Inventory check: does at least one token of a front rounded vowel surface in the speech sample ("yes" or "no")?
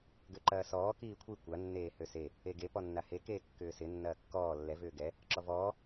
yes